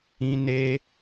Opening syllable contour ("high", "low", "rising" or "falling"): high